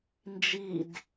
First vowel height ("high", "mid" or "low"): high